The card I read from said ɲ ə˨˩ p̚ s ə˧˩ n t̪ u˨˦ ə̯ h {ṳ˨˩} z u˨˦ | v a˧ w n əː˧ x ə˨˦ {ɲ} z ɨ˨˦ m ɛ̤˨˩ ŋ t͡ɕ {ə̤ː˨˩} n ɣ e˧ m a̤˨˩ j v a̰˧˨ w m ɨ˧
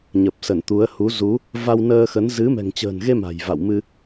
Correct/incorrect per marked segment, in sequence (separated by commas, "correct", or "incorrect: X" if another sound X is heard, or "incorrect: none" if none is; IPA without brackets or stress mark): incorrect: u˨˦, incorrect: n, correct